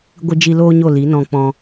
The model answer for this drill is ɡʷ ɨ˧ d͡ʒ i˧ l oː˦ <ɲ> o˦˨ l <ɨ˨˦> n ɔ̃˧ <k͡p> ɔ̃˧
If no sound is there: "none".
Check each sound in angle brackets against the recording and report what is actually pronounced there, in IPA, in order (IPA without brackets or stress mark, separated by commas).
ɲ, i˨˦, k͡p